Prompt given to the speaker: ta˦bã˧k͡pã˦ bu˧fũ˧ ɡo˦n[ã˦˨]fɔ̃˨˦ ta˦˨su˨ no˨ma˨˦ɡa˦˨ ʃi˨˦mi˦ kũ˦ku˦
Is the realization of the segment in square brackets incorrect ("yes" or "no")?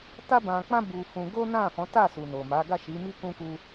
no